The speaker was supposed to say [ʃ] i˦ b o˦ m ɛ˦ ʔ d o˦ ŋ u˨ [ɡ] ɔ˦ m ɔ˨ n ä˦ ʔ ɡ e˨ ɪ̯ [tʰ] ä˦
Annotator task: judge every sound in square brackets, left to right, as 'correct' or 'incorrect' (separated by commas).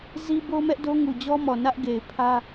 incorrect, incorrect, incorrect